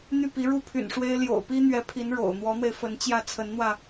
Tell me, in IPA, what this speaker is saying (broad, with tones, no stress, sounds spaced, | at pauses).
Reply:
n̪ y˥˩ p i˧˥ ɻ u˥˩ pʰ y̰˨˩ n ʂ w e˥ ɪ̯ l j o̰˨˩ ʊ̯ p i˥ n̪ ɥ ɛ˧˥ pʰ i˧˥ n ɻ o̰˨˩ ʊ̯ n̪ w ɔ˧˥ n̪ w e˧ ɪ̯ f ə˧˥ n t͡ɕ j ä˥˩ t͡sʰ ə˧˥ n n̪ w ä˧